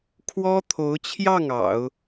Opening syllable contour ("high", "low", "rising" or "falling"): high